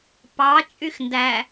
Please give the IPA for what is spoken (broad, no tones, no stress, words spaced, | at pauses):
pɑ t͡ʃʼyxndæ